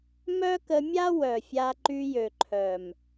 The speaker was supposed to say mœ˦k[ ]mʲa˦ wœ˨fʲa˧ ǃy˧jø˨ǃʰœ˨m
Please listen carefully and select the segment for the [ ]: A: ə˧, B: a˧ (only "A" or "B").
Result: A